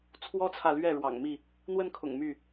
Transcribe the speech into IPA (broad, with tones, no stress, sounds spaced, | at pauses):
t͡sʰ w ɔ˦ t͡sʰ ä˨ l ɥ ɛ˥˨ ɻ w ɑ̰˨˩ ŋ m i˥˨ | n̪ w ə˦ n kʰ ʊ̰˨˩ ŋ m y˥˨